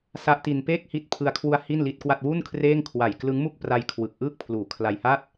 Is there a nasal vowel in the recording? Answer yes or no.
no